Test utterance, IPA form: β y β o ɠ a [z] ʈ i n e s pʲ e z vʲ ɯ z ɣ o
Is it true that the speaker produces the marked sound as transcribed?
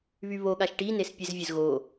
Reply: no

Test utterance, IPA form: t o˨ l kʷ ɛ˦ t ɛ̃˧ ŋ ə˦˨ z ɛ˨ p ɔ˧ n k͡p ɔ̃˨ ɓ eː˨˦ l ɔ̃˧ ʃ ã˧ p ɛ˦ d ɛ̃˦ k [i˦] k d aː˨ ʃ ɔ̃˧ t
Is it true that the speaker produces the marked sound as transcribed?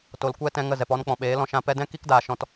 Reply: yes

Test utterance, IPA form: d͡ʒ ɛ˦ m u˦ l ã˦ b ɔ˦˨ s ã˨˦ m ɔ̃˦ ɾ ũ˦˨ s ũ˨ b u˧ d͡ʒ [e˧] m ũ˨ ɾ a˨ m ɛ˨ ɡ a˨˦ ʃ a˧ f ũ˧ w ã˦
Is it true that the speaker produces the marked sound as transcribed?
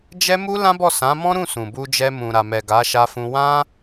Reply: no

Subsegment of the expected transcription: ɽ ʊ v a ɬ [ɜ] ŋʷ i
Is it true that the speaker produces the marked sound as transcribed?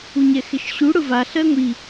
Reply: yes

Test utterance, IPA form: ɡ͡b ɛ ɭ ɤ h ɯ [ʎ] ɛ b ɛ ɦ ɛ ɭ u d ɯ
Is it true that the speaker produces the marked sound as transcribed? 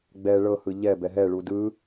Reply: yes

